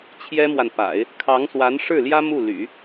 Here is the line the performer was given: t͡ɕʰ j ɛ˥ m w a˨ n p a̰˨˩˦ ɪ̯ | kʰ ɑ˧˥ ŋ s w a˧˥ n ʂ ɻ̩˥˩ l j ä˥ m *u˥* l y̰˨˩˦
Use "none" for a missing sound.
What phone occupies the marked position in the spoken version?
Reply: u˥˩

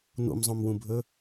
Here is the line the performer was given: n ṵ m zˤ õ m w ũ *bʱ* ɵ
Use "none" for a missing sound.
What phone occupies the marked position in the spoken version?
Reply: bʱ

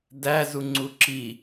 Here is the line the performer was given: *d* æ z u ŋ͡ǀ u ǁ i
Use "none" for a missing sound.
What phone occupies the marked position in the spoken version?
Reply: d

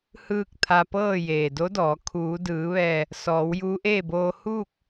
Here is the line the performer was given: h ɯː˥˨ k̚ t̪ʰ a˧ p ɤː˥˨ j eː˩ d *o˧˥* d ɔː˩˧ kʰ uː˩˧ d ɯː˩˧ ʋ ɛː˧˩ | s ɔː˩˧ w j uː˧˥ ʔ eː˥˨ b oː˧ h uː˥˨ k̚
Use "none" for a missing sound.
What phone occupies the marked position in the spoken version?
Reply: o˧˥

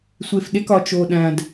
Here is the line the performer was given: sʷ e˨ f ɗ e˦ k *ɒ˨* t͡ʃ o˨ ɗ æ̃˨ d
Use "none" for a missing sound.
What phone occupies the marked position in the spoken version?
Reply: ɒ˨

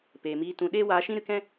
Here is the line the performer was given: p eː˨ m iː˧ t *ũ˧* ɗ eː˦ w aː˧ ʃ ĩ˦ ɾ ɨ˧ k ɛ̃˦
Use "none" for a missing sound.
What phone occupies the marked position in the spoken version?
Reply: ũ˧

